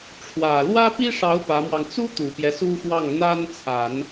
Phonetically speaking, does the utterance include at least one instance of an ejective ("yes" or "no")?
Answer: no